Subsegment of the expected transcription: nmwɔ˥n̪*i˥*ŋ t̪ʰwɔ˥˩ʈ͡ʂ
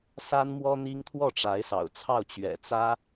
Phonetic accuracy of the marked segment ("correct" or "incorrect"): correct